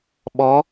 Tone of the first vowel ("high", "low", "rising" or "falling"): rising